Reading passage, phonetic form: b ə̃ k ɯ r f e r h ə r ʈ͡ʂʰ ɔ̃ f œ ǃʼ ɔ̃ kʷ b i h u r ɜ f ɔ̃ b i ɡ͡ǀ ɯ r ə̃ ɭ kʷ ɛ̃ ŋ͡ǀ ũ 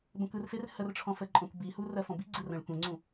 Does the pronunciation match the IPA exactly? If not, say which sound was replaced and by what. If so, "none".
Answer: œ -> ə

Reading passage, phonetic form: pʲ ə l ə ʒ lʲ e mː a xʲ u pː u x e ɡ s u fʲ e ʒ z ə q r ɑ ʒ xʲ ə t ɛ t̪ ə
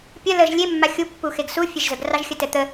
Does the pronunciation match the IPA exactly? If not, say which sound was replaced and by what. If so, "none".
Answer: q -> ɡ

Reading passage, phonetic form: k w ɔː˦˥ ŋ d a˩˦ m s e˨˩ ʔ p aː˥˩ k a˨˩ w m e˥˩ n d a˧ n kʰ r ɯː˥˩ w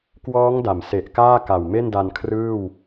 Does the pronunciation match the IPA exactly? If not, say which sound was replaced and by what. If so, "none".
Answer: p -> k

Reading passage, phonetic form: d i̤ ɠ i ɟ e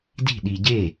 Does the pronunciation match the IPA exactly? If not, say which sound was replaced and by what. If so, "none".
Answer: ɠ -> ɗ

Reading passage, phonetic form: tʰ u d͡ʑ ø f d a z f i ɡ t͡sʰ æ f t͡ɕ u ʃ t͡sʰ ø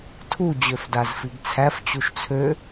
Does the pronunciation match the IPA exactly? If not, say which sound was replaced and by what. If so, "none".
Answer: none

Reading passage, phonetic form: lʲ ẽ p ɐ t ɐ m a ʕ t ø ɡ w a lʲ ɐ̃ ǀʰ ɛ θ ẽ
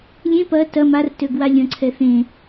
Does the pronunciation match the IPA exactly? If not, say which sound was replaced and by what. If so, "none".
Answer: ʕ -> r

